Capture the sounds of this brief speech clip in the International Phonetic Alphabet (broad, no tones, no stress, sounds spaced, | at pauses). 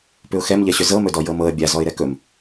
p ʏ ʊ̯ x ɛ m ʎ ɛ ɕ ʏ z ɤ m ɵ d ɔ j ɤ m ɤ ə̯ bʲ a z ɔ ɪ̯ ɾ ɛ k ɵ m